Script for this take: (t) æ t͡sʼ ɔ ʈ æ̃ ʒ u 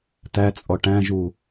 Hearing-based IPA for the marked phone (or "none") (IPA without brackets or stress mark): t